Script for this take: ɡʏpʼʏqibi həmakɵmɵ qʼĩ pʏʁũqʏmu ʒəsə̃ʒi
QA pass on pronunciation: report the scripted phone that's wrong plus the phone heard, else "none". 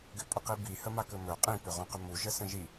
none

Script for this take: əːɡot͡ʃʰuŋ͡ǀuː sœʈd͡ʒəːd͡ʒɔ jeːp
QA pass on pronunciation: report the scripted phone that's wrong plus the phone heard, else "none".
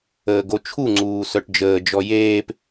none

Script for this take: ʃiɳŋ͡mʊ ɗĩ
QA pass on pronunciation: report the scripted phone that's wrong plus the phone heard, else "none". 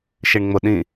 none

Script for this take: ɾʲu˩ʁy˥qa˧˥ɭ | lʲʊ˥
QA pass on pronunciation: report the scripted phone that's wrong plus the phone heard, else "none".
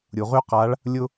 none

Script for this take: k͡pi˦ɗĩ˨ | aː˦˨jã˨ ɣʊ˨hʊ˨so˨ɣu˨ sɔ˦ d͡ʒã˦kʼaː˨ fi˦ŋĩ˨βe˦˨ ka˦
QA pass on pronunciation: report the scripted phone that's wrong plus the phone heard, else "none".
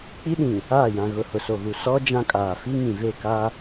β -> v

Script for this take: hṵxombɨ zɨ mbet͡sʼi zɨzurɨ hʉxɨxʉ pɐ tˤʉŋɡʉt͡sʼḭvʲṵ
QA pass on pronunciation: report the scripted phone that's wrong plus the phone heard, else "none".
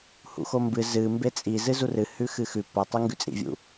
none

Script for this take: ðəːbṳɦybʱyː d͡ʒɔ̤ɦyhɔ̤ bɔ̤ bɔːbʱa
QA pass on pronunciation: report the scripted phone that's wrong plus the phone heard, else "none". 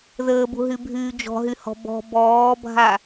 none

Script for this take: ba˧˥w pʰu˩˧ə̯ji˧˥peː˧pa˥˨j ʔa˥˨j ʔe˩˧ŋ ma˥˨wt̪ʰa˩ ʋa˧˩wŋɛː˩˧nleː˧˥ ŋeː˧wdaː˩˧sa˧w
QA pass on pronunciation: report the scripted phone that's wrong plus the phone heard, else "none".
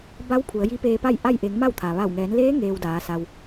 none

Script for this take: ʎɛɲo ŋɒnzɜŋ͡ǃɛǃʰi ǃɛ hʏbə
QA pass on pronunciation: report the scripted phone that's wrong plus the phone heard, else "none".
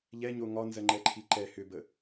none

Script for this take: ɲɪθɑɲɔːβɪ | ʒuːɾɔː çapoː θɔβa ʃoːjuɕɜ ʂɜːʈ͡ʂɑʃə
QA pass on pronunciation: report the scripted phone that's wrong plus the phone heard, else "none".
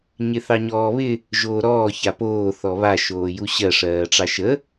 uː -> oː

